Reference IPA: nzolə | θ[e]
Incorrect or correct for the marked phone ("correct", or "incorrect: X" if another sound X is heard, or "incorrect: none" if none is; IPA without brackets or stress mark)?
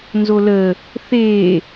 correct